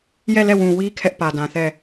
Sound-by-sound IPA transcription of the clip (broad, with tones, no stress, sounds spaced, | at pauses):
j ɛ˦˨ l ɛ˦˨ w ũ˨ w i˦ kʰ ɛ˦ ʔ p ä˨ d ã˨ θ ɛ˦˨